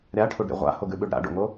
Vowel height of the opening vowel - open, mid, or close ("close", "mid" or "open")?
open